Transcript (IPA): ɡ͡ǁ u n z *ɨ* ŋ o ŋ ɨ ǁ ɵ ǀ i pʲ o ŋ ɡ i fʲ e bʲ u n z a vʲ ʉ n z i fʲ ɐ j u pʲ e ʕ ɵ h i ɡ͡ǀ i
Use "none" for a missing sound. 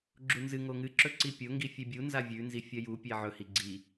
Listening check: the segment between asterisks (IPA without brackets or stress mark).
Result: ɨ